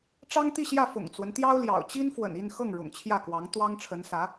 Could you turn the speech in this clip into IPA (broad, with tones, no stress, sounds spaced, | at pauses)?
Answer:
ʈ͡ʂ ɑ˥ ŋ t̪ i˥˧ ɕ j ä˥˩ f ʊ̰˨˩ ŋ t͡s w ə˦ n t̪ j ɑ˥ ʊ̯ l j ɑ̰˨˩ ʊ̯ t͡ɕ i˥ n f w ə̰˨˩ n i˥˧ n x ɤ˥˩ ŋ ɻ ʊ̰˨˩ ŋ t͡ɕʰ j ä˥˩ k w ɑ˧˥ ŋ t̪ w ɑ˥ ŋ ʈ͡ʂʰ ə˧˥ n s ä˧˥